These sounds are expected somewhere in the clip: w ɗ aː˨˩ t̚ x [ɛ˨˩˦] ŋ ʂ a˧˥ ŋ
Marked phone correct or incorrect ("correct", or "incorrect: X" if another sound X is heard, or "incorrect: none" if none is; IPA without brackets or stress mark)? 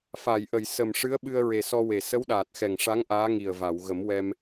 incorrect: ɛ˨˩